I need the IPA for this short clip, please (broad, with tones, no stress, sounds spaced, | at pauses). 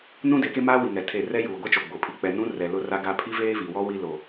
n ũ˦ d e˨˦ k e˦ m aː˦ w i˨ ŋ ɛ˨ tʰ e˦˨ r ɛ˦ j uː˨ ɡʷ ɛ˦ t͡ʃ o˨ ɡ͡b o˨ pʰ i˨ k͡p ɛ˨ n ũ˦ r ɛ˨ l ʊ˦ r a˦ ɡ a˦ pʰ i˦ v eː˦ v i˨ w ɔ˦ w i˦ l o˨